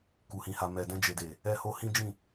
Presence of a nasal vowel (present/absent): present